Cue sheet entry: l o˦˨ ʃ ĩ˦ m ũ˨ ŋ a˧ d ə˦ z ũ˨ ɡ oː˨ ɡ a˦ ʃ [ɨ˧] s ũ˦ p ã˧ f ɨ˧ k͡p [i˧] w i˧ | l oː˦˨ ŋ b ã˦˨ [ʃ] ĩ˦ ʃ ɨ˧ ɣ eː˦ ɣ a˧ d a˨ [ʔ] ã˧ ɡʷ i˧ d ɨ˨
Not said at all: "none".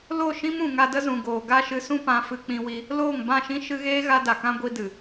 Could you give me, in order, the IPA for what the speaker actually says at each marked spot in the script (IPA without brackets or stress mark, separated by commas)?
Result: ɨ˧, ĩ˧, ʃ, k